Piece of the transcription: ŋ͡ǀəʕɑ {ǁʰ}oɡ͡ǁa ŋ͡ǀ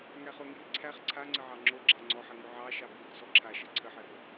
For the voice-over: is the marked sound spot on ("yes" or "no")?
no